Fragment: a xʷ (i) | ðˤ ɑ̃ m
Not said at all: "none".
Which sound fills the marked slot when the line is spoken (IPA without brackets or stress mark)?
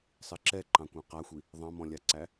i